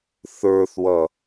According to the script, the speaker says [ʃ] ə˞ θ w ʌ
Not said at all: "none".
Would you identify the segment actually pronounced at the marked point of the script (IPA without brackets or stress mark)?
θ